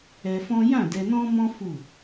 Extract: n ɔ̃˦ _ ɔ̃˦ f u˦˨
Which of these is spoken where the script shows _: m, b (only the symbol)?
m